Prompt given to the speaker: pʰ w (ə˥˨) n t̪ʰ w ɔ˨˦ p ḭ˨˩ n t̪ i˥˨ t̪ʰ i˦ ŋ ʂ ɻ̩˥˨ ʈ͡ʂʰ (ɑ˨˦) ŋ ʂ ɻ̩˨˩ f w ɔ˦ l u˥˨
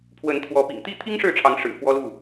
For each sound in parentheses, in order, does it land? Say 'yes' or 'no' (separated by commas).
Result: no, yes